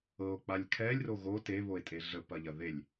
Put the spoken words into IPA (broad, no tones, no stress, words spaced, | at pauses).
ɤo̯k͡palʲ kʰɛlʲro ɣo teβoe̯tʼe ɮəpɐʎɐ ðelʲ